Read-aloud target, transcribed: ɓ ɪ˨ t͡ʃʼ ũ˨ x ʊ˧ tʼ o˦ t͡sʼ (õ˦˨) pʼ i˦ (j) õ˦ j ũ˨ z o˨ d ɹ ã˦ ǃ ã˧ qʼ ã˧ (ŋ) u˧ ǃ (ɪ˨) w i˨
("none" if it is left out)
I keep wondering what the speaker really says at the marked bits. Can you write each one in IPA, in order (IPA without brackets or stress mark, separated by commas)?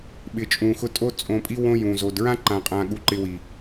õ˧, w, ɠ, ɪ˧